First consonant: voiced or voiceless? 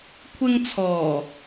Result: voiceless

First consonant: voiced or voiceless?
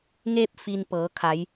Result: voiced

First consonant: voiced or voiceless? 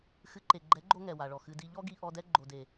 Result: voiceless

